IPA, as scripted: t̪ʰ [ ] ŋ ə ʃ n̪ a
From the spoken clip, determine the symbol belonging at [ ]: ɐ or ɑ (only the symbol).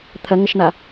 ɐ